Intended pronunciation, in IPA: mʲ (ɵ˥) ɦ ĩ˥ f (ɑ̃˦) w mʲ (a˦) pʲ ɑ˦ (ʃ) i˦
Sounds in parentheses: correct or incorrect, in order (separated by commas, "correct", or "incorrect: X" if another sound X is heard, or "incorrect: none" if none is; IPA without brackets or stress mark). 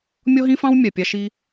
incorrect: ɔ˥, incorrect: ɑ̃˥, incorrect: a˩, correct